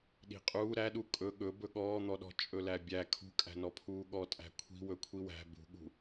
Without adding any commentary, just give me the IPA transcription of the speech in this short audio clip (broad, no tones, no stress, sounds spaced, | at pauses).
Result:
ɗ i̤ qʼ uː ɾ æ ɗ u kʼ ɵ ɠ ɵ b ɵ ɠ ɔː n̪ ɔ ɗ ɔ̤ t͡ʃʼ ɵ l æ bʲ æ kʰ ṳ kʼ æ̤ n ɔ pʰ uː ɠ ɔ tʼ æ̤ kʷʰ i̤ w ɵ kʷʰ i w æ̤ b ṳ ɠ ṳ